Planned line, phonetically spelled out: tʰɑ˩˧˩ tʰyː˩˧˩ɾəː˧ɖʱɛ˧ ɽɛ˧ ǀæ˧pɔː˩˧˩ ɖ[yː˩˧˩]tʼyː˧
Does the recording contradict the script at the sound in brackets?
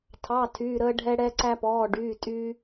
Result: no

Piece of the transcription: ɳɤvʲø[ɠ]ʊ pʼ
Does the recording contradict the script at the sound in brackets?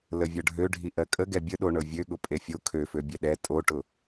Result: no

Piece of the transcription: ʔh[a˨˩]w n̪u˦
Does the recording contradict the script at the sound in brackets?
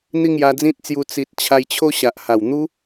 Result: no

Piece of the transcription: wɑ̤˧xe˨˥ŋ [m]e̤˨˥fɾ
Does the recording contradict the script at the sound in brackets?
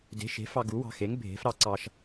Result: yes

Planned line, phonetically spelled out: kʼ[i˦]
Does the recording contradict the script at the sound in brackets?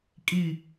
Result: yes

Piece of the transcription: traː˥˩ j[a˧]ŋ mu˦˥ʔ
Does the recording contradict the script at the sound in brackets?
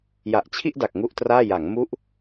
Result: yes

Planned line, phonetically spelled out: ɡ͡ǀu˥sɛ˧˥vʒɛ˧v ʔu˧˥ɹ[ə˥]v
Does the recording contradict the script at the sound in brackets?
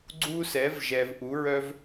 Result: yes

